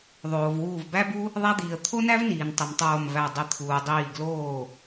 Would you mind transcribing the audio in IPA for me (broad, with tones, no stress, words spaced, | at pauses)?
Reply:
ðˤoː˩v wuː˧˩vbæ˥bu˥ | ðˤæ˥d̪iː˩ə̯ t̪ʰo˥næ˥vniː˩n tˤi˩mtˤoː˧˩mvæ˧˩ dˤi˧˩t̪ʰuː˩ dˤiː˧˩ɡloː˥˩